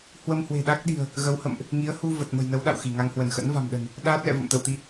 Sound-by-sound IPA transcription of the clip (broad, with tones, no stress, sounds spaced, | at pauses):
h w ə˧ m h w e̤˨˩ ɗ a˦˥ k̚ ɗ i̤˨˩ ə̯ | ɣ ə˨˦ w h ə̰˧˨ m ʔ | ŋ i˨˦ ə̯ h u˧ v ə˨˩ t̚ m ə̤˨˩ j n ə˨˦ w ɗ a̰˧˨ w x i˧˩ ŋ a˧ ŋ h w ə˧˩ n x ə̰˧˥ n v a̤˨˩ m ɗ ə̤˨˩ n | ɗ aː˦˥ t̚ l ɛ̰˧˨ v ə̰˧˨ m t̪ ə̰˧˨ w t̪ i˧